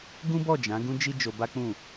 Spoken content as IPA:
ɡ ũ˦ b ɔ˦˨ d͡ʒ ã˨˦ ɡ ũ˦ d͡ʒ i˦ d͡ʒ o˧ b a˦ k͡p ũ˦˨

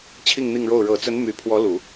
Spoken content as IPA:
t͡ɕʰ i˥˧ ŋ n̪ i˥˧ ŋ ɻ o˥˩ ʊ̯ ɻ ɤ˨˩ t͡s ə˧˥ n m y˨˩ pʰ w ɔ˧˥ l u˨˩˦

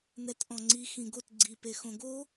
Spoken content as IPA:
n ɛ t ʔ ɔ̃ ŋ͡ǀ i x ĩ ɡ o t ɡ͡ǀ i p e x õ ɡ o

